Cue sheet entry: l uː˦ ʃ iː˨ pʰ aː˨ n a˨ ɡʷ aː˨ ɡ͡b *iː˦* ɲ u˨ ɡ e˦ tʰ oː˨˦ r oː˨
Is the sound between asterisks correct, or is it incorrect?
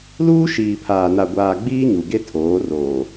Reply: correct